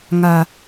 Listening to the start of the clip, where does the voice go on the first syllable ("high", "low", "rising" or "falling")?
low